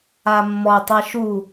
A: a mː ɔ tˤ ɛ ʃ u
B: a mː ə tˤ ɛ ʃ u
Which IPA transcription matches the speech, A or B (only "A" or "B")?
A